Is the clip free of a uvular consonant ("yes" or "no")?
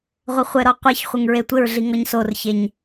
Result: no